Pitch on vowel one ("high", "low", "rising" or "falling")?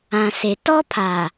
low